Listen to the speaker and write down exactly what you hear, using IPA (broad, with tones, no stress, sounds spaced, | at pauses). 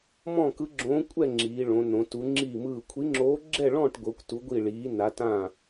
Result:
m ɔ̃˥˧ k ɯ˧˥ ɡ͡ǁ õː˧˥ kʷʼ ɛ˥˧ ŋ͡ǁ iː˧˥ ɭ õ˧˥ n õ˧˥ t u˧˥ ŋ͡ǁ iː˥˧ m ɯː˥˧ kʷʰ i˧˥ ŋ͡ǁ oː˧˥ ɡ͡ǁ ɛ˥˧ ɭ ɔ̃ː˥˧ ʈ ɡʷ ɤ˧˥ kʷ t u˧˥ ɡʷ i˥˧ ɭ iː˧˥ n a˧˥ t ã˥˧